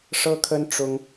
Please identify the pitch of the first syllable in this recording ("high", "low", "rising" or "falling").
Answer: high